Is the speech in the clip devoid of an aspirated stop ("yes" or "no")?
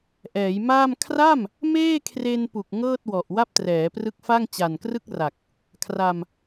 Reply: no